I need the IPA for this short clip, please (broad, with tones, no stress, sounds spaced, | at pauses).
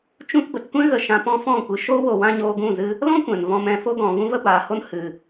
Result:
t͡ʃ ũ˧ t b ə˨ t kʷ ɛ̃˦ ɣ ə˧ ʃ ã˧ p ɔ̃˦ f ɔ̃˦˨ kʷ ɨ˨ ʃ o˦ w o˧ w ã˦ ɲ oː˧ ɡ ũ˦˨ z ɨ˦ | l ɔ̃˦ kʷ ɛ̃˨ n v ɔ̃˧ m ɛ̃˨ f o˧ ɡ ɔ̃˨ v ũ˦ v ə˦ b aː˨ h o˦ n h ɨ˨